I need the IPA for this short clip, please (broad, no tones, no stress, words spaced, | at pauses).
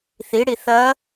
θiɽi θɐ